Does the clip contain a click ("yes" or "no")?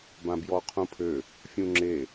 yes